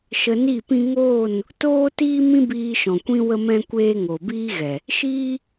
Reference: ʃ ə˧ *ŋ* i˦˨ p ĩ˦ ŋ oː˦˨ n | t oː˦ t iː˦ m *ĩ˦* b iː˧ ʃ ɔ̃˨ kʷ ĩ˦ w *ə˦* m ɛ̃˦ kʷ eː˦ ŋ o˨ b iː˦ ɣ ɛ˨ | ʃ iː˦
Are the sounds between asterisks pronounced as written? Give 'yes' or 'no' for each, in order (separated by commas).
no, yes, yes